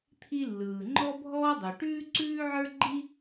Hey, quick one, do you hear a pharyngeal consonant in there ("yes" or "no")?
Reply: yes